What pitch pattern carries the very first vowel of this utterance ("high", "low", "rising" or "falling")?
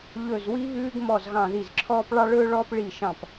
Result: falling